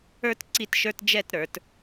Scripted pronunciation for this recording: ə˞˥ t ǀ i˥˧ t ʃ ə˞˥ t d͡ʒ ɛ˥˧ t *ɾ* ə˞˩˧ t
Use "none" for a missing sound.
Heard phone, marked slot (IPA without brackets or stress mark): ɾ